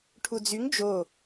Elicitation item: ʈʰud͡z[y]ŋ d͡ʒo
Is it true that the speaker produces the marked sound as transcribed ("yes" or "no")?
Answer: yes